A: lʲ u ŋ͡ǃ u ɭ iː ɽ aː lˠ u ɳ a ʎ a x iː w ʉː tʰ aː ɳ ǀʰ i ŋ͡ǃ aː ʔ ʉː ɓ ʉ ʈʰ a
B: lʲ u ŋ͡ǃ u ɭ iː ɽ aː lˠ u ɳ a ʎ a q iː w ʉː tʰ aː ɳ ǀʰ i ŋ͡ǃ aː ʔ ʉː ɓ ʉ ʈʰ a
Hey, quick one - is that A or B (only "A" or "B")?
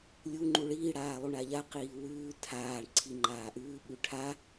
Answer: B